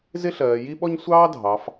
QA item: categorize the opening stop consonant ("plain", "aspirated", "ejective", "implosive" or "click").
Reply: implosive